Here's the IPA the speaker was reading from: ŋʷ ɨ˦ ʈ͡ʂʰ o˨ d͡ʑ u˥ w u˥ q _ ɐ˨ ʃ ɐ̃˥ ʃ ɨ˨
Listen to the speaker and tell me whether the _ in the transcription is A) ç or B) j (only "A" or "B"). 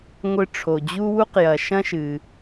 B